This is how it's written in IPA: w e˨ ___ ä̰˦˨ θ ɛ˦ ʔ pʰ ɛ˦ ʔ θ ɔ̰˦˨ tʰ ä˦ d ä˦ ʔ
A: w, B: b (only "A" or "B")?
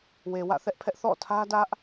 A